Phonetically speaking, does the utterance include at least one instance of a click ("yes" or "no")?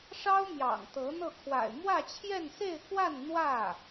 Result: no